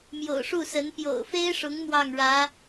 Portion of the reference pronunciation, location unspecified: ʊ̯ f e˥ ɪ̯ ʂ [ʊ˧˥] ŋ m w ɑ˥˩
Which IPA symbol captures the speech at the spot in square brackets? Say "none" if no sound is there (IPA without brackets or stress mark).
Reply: ʊ˧˥